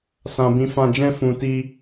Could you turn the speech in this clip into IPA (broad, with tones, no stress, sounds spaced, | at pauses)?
s ã˧ b ĩ˧ f ã˧ d͡ʒ ɛ̃˦ f ũ˧ t i˦